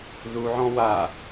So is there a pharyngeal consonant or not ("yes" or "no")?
yes